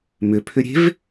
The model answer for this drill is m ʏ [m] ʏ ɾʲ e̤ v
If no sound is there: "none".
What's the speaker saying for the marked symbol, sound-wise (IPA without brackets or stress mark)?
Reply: pʰ